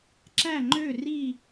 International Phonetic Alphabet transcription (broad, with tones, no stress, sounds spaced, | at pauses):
ǁ æ˥˨ ŋ͡ǃ ø˥˨ r i˥˨